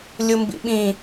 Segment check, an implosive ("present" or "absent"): present